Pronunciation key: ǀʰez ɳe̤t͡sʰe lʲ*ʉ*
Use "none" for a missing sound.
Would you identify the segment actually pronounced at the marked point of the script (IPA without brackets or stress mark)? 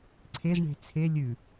ʉ